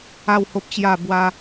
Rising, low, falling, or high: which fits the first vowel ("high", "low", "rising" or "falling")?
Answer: falling